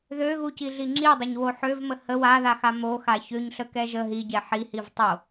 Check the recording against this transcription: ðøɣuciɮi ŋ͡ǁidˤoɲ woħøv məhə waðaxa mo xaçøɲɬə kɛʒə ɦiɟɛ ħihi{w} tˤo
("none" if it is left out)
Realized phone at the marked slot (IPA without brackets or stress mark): v